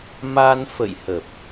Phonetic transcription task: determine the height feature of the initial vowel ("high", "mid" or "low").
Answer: low